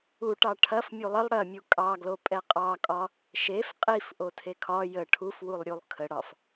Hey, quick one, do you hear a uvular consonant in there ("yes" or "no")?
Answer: yes